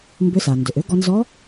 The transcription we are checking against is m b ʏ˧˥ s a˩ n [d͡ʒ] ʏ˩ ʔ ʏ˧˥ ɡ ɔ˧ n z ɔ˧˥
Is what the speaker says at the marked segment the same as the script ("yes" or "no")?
no